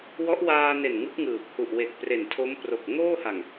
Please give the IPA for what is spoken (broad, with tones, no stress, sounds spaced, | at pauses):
w ɔ˦˥ ʔ w aː˧ n e˨˩ n ŋ ɯ˦˥ k̚ ŋ ɯː˨˩ p̚ h u˨˩ ʔ w e˨˩ k̚ p r e˨˩ n tʰ o˦˥ m p r o˨˩ k̚ ŋ oː˥˩ h a˨˩ ŋ